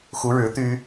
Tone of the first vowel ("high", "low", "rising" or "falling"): rising